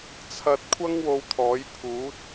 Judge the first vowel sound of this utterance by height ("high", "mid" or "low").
low